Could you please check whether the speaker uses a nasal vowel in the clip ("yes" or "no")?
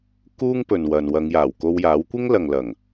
no